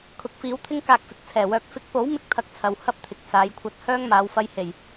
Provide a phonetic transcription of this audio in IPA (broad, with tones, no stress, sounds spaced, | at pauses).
kʰ ʊ˨˥ k̚ f iː˨˥ w t̪ʰ ɪ˥ ŋ k aː˧ k̚ f ɪ˨ k̚ t͡sʰ ɛː˨˩ w œː˨ k̚ f ɪ˨˥ k̚ p o˨˥ w m ɪ˧ k̚ t̪ʰ ɐ˧ k̚ t͡sʰ ɐ˨ w h ɐ˥ p̚ t̪ʰ ɪ˨ k̚ s aː˨˥ j kʷʰ ɐ˥ t̚ h œː˥ ŋ m aː˨˧ w f ɐ˧ j h e˨˩ j